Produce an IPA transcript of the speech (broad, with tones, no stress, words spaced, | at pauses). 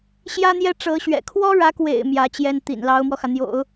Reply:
ɕjä˥n̪jɛ˥ʈ͡ʂɤ˧˥ɕɥɛ̰˨˩ kʰwɔ˥ɻä˧˥kwḛ˨˩ɪ̯ mjä˧˥t͡ɕjɛ˥n t̪ḭ˨˩n lɑ˧˥ʊ̯mwɔ˧xä˩n̪jo̰˨˩˦ʊ̯